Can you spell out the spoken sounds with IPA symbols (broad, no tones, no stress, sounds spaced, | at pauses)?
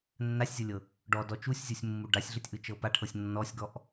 nː a sʲ zʲ ɤ lʲ ɤ | ɖ ɔ d ɔ t͡ʃ u sʲ zʲ o sʲ mː u ɖ a sʲ ɮ ɯ tʲ ʔ ɯ t͡ʃ ɤ p a ʈʰ ɤ sʲ nː ɔ sʲ ɡ ɔ ʔ